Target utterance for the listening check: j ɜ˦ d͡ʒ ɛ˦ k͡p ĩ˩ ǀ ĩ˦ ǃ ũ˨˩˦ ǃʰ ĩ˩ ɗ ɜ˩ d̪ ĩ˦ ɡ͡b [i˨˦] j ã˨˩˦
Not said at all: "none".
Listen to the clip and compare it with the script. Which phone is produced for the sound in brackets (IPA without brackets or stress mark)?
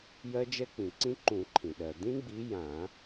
i˨˦